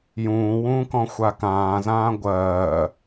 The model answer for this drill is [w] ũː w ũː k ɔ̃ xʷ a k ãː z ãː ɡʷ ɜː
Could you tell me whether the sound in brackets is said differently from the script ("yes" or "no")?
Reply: yes